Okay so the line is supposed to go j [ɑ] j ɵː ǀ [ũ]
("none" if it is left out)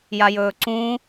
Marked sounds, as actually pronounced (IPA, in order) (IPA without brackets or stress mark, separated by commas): a, ũ